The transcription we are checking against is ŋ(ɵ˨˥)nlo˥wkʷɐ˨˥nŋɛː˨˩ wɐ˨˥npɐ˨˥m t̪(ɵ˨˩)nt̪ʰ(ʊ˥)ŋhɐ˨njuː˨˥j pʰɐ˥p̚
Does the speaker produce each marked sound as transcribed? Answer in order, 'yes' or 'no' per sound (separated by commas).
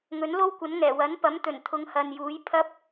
yes, yes, no